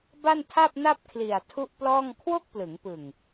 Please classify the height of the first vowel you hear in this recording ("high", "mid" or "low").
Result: low